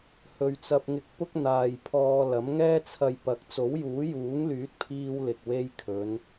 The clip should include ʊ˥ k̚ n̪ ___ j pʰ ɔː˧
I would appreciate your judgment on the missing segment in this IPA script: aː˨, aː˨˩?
aː˨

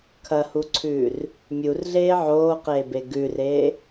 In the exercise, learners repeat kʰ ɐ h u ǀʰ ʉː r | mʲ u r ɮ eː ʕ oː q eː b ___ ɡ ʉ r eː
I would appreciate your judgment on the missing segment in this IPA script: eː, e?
e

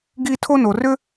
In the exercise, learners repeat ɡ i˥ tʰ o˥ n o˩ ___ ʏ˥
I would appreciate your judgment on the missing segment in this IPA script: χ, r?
r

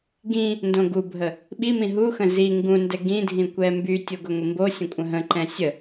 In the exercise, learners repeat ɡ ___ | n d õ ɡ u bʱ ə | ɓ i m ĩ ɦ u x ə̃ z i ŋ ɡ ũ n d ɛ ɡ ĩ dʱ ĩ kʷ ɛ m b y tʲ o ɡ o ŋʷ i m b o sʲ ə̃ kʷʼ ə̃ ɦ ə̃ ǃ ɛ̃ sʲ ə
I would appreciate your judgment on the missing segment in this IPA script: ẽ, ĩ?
ĩ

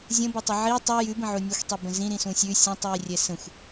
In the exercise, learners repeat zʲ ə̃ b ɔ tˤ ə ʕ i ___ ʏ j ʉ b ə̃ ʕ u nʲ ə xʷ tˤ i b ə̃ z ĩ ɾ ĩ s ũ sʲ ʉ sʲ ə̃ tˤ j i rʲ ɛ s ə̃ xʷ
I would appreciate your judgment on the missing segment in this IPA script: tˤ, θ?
tˤ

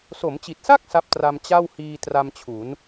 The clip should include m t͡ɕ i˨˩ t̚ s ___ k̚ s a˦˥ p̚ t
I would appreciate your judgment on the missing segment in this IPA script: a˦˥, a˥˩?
a˥˩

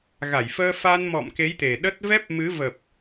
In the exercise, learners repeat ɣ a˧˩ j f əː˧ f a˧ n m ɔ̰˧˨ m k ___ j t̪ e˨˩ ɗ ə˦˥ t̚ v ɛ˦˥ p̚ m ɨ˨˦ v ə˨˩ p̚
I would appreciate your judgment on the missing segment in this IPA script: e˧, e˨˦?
e˨˦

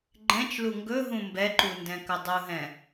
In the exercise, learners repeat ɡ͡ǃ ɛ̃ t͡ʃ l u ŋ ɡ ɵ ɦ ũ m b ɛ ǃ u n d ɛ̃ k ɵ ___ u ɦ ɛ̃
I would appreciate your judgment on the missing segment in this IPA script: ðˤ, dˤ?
dˤ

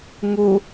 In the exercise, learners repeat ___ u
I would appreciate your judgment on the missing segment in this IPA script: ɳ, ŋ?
ŋ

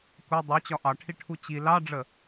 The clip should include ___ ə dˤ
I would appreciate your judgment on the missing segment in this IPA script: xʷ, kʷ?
kʷ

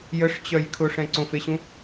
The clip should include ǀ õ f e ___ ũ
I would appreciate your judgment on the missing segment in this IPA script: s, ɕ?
ɕ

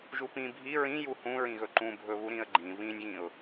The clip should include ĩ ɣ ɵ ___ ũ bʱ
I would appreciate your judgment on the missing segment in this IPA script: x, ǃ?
ǃ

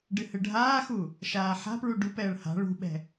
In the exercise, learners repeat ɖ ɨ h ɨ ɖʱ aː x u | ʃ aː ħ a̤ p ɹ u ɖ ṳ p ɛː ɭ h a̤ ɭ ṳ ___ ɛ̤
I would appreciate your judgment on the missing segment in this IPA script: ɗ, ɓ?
ɓ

